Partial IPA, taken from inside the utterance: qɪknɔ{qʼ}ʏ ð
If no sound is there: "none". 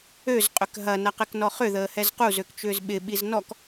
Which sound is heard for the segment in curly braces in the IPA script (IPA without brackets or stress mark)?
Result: χ